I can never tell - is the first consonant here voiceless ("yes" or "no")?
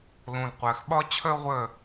no